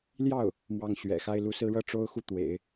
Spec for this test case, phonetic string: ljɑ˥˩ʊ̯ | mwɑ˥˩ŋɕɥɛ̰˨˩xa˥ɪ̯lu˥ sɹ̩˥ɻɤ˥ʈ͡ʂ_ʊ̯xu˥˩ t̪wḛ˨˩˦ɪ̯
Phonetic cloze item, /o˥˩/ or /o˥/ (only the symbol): o˥